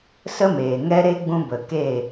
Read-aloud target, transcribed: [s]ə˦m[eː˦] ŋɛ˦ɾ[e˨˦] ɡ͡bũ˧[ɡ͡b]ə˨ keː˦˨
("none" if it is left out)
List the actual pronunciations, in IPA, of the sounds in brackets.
s, eː˨, e˦, b

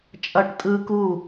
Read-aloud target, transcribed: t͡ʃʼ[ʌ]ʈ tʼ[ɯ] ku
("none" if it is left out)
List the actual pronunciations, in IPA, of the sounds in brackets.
ʌ, ɯ

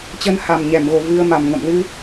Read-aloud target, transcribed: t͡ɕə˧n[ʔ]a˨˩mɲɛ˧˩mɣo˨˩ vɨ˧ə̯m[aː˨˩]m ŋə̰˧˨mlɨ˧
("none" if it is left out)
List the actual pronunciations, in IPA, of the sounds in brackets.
h, a˨˩

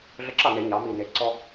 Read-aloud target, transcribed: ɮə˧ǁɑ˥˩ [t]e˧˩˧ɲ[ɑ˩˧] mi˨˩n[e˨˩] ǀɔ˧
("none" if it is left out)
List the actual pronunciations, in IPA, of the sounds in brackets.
n, ɑ˩˧, e˨˩

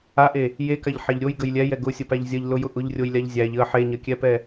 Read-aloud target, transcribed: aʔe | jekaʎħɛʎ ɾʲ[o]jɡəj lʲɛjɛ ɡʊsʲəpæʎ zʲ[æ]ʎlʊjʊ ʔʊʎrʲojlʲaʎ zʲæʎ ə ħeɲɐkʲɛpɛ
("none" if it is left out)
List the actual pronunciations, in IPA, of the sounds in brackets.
o, ɐ

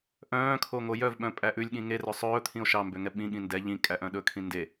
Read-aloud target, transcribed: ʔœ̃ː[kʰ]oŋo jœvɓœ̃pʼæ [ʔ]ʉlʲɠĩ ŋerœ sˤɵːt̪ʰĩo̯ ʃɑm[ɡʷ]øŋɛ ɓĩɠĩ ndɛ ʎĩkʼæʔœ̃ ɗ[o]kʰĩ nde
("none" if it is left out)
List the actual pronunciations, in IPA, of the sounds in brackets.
kʰ, ʔ, b, ɵ

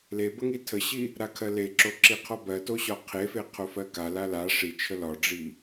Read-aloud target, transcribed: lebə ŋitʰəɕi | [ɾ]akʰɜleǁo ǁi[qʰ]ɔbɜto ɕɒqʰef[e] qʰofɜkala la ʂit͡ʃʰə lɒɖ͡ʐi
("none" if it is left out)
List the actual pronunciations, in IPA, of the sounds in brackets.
ɾ, qʰ, e

